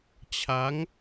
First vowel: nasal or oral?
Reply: oral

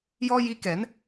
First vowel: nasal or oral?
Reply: oral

